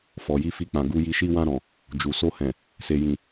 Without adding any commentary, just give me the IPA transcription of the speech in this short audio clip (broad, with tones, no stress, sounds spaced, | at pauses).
f ɔ˨ j i˨˦ f i˧ k͡p ã˨ ɡ u˨˦ j i˧ ʃ i˧ w ã˧ ɾ ɔ̃˨ | d͡ʒ u˨ s o˧ h ɛ̃˨ | s e˨ j ĩ˨